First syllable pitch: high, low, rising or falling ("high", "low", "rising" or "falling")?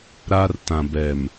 high